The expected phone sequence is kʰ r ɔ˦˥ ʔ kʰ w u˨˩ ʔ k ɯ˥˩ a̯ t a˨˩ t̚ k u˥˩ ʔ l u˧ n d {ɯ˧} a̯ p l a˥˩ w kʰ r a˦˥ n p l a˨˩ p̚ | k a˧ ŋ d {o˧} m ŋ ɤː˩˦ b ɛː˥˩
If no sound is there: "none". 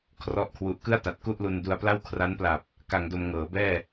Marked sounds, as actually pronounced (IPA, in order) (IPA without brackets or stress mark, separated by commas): u˧, o˧